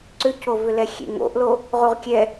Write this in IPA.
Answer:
ǀ ʏ c o v ʏ l ɛ xʲ ḛ ŋ o̰ ʔ l o | ʁ u ʁ kʲ ɛ

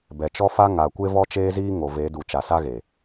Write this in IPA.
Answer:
b ɛ˨ t͡ʃ ɔ˦ f a˦ ŋ a˨ kʷ e˦ v ɔ˦ t͡ʃ eː˦ z iː˦ ŋ o˨ v e˨˦ d u˨ t͡ʃ a˨ s a˦ ɣ e˨

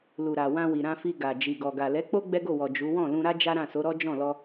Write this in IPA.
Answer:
l u˨ ɾ a˨ w ã˧ w i˨ ɾ ã˧ f i˧ ɡ a˨ d͡ʒ i˨ ɡ ɔ˨ ɡ a˨ l ɛ˨˦ k͡p o˦ ɡ͡b ɛ˦ ɡ o˦˨ w ɔ˨ d͡ʒ u˨˦ w ɔ̃˦˨ l ũ˧ ɾ a˦ d͡ʒ a˦ ɾ ã˦˨ s o˨˦ ɾ ɔ˦ d͡ʒ ɔ̃˦˨ l ɔ˧

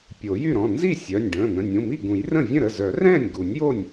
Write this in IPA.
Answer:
pʲ o˨˩˦ j y˥˩ ɾ ɔ̃˩˧˩ n z i˥˩ sʲ œ˩˧˩ nʲ ɖ ə̃ː˩˧˩ n̪ ə̃˩˧˩ nʲ ũ˩˧˩ m i˥˩ ɡ ũ˨˩˦ j r ə̃˥˩ vʲ ə̃˥˩ ɾ ə˩˧˩ z œ˨˩˦ r ɛ̃ː˥˩ nʲ ɡ u˨˩˦ nʲ j o˥˩ nʲ

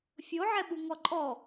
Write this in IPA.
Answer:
fʲ o ʕ ɛ ɓ u ŋ ɔ ǃʼ ɔ

